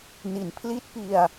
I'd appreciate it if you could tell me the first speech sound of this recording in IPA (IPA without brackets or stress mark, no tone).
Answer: n